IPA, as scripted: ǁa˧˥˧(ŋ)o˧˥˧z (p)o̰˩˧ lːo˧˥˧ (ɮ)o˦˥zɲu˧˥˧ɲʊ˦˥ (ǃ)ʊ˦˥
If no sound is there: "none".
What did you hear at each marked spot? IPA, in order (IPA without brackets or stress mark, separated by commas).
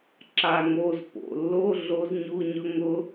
ŋ, p, ɮ, ŋ